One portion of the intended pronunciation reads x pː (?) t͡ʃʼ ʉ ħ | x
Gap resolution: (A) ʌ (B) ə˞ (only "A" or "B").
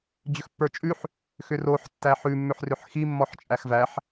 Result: B